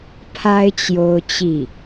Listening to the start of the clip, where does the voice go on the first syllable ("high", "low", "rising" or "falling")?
high